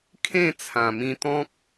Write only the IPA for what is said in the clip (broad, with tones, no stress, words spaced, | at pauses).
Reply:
kʰẽ˥˧t͡sʰã˨˩mĩ˧t̪ɔ̃˦k̚